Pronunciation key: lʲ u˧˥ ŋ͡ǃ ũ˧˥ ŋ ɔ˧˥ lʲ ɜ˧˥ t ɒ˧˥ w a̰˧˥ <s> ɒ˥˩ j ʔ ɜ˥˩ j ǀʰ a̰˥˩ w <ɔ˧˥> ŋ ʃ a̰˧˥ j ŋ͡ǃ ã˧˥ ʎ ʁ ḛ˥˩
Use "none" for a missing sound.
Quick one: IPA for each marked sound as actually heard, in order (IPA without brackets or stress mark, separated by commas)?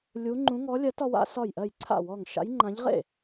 s, ɔ˥˩